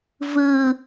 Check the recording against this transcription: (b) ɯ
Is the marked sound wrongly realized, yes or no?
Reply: yes